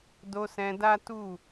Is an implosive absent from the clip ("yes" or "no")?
yes